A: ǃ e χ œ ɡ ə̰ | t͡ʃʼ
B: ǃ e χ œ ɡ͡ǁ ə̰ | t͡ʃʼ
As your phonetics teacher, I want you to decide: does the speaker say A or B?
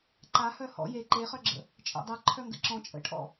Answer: B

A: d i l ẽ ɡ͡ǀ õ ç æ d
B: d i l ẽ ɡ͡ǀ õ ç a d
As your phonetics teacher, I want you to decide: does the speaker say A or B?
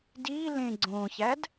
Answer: A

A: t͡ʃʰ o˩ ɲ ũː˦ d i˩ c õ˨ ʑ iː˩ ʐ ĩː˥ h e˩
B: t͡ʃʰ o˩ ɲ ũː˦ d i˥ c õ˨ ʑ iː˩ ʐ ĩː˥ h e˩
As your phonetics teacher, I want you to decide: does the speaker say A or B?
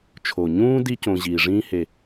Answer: B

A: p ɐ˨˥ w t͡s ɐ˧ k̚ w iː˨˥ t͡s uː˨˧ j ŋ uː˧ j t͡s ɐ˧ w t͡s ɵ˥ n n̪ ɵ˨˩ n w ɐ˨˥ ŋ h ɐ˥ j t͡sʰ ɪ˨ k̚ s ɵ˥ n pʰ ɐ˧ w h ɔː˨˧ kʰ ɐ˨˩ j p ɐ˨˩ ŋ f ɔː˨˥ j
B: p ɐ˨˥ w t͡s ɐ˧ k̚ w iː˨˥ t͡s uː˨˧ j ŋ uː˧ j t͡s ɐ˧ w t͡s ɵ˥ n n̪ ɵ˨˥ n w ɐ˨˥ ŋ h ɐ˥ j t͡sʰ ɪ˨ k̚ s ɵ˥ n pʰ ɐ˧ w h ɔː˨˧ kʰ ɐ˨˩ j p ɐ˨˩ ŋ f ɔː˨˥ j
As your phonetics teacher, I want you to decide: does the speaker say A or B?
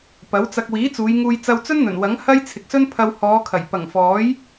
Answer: A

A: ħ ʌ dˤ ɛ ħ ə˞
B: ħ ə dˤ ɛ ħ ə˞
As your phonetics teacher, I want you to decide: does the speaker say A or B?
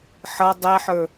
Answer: A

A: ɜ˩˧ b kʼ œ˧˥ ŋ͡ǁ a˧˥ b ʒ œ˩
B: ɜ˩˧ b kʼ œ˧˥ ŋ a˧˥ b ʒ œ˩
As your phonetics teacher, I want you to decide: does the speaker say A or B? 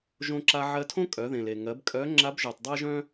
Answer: A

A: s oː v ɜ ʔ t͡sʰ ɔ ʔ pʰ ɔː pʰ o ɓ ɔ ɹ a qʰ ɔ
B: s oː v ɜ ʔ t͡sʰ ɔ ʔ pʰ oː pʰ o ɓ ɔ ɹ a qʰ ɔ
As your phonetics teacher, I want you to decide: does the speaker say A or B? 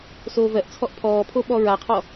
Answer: A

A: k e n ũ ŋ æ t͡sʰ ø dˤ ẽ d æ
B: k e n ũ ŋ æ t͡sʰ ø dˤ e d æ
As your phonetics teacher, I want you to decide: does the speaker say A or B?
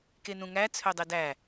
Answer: B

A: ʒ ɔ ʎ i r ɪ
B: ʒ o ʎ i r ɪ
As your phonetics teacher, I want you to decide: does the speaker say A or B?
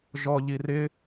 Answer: A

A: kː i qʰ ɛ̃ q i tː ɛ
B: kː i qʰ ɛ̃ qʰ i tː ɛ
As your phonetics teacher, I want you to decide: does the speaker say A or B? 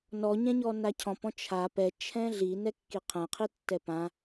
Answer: B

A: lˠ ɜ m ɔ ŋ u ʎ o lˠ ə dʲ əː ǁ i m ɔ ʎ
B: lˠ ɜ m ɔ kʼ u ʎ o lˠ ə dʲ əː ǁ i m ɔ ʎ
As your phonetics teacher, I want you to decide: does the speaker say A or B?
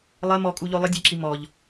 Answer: B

